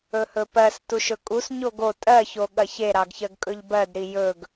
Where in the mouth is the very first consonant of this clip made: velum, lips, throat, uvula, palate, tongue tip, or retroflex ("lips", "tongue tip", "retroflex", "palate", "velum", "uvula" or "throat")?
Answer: throat